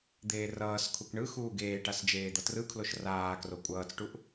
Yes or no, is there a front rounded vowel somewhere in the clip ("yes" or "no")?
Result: no